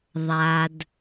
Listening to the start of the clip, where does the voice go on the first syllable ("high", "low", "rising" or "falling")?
low